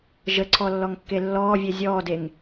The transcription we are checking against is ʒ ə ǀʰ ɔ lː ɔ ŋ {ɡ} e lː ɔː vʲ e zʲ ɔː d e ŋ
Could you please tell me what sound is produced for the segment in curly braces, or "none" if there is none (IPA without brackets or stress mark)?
kː